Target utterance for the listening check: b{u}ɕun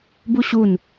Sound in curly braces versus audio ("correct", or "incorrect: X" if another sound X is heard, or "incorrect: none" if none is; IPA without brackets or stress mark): correct